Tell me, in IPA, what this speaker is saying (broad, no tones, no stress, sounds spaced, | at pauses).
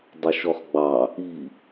dˤ u ʃ ɔ χ ɡ͡b ɑ | i